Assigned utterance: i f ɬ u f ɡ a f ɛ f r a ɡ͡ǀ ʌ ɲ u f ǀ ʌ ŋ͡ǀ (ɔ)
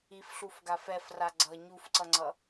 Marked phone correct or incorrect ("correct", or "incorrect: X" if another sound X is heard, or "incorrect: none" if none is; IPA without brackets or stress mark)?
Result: incorrect: ʌ